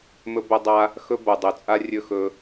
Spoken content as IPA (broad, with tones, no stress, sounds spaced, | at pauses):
m ɵ˦ b ɵ˦ dˤ a˦ | x ɵ˦ b o˨ dˤ ɵ˨ t͡sʼ a˦ rʲ ɵ˧ x ɵ˧